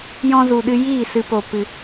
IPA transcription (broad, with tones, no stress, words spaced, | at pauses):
jɔ̃˧zu˨ɗɨ˧ jiː˦˨sɨ˧po˨ pɨ˨